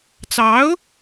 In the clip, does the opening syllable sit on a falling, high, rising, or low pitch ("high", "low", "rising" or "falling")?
rising